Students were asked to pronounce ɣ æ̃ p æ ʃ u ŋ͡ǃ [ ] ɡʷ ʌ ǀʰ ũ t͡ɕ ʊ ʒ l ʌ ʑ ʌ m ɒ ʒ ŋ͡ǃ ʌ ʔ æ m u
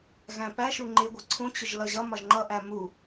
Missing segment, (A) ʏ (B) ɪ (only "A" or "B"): B